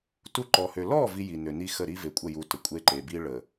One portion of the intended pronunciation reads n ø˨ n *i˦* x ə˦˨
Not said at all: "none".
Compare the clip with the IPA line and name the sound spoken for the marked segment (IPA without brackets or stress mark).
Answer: i˦